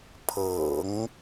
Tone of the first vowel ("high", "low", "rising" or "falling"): low